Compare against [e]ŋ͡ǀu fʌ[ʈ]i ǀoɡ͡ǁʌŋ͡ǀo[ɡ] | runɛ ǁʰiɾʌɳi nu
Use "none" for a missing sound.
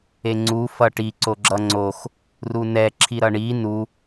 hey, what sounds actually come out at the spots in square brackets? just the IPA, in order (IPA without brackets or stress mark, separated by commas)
e, ʈ, x